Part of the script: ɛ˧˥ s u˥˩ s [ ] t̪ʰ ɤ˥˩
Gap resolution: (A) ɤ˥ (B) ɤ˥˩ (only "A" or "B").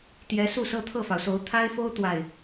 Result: A